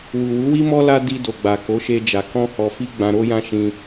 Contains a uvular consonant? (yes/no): no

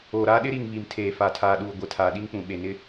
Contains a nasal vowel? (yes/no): yes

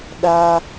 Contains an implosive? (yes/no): yes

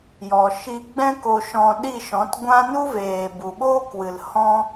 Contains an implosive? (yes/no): yes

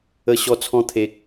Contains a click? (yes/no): no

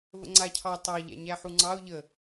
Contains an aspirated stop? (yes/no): yes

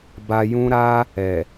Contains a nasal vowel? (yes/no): yes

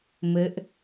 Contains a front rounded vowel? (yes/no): no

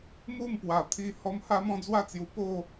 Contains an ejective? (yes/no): no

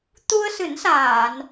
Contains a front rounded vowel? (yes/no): no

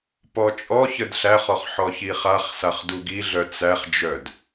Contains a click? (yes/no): no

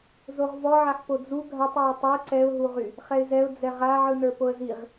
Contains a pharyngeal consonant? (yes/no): yes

